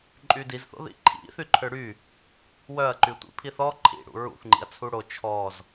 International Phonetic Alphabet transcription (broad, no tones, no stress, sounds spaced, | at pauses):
ǃʼ y d i z θ o̰ ð ḭ ǃʰ ḭ θ y ǃʰ ø ɽ y | w œ ɐ̯ ǃ y tʷ ḭ pʰ i θ ɔ ǃʰ ḭ ɽ ṵ ɹ ṵ θ ŋ͡ǃ ḭ ɐ̯ t͡sʰ u ɽ o t͡ʃʰ ɔ z